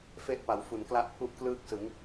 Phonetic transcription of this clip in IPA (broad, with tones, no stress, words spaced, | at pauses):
fe˥˩ʔ pa˩˦w fu˨˩nkla˥˩ʔpʰu˥˩ʔ klɯː˥˩k̚sɯ˩˦ŋ